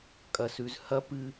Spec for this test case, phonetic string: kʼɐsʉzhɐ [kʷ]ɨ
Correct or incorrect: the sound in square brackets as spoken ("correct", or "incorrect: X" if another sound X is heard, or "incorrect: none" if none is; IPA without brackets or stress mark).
incorrect: p